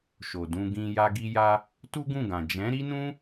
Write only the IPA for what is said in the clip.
ʃ o˨ d ũ˧ ɡ ĩ˧ j a˦ ɡ i˦ j a˦ | t u˦ ɡ ũ˦˨ ɡ ã˨ d͡ʒ ɛ̃˨˦ ɾ i˦ n ũ˦

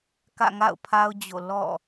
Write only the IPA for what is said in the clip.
k ä̰˦˨ ŋ a̰˦˨ ʊ̯ pʰ a˦ ʊ̯ d͡ʑ o̰˦˨ l ɔ̰˦˨

